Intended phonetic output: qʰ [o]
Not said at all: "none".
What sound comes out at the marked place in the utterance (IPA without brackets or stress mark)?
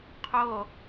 o